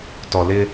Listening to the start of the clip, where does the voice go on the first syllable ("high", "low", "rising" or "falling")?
low